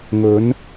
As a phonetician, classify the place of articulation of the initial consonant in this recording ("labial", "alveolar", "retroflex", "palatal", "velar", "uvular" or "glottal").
velar